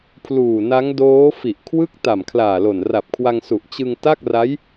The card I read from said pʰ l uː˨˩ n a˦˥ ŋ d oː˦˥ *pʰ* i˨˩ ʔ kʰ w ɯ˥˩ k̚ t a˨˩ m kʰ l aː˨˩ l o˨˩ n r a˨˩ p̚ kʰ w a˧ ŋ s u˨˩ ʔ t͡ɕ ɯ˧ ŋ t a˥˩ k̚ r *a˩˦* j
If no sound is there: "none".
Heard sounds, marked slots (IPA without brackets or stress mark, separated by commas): f, a˦˥